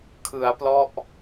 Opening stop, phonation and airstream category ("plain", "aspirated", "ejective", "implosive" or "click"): aspirated